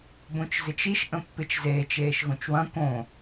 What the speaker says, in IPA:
b õ t͡ʃ z ɪ t͡ʃ i ʃ ʔ ə̃ pː ɪ t͡ʃ z eː t͡ʃ eː ʃ ɣ õ t͡ʃ w ɐ̃ k õ

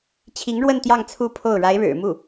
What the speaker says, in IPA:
t͡ɕʰ i˧˥ ŋ ɻ w ə˥˧ n t̪ j ɑ˥˧ ŋ t͡sʰ u˥˧ pʰ o˥˩ ʊ̯ ɻ a˧˥ ɪ̯ ɻ ɻ̩˨˩ m u˥˩

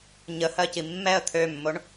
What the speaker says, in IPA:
ɲ ə h ɜ c i mː ɛ ə̯ t̪ʰ ø mː o ɳ

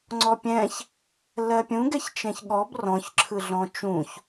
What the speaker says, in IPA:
ŋ͡ǀ ɔ pʲ ɛ̃ ç | l ɜ pʲ ũ ɡ ɛ ç t͡ʃ ɛ̃ ç ɠ ɔ b r ɔ̃ ç ǁʰ ɯ ɮ ɔ̃ t͡ʃ ũ ç

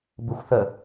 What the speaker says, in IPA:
b ɨ xʷ θ ə

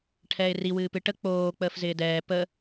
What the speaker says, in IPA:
ʈʰ ɛː ɪ̯ r i w ɨː p ɨ ʈ ə k͡p oː k͡p əː f z ɪː d ɛː p ə

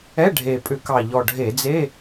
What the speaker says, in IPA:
ɛ˧˥˧ ɖʱ e˨˩ pʼ ʏ˧˩˧ k ɑ˨˩ ʎ ɔ˨˩ ɖʱ e˧˩˧ d͡z e˧˥˧

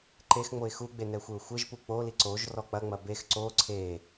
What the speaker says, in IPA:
ǃ e x ŋ͡m o ɪ̯ x u ɡ͡b e n ɛ xʷ e ʊ̯ xʷ e ʒ p u k͡p o l i ǀ o ʒ r ɔ k͡p ɐ ŋ͡m ɐ b e x ǀ o ǀʰ e

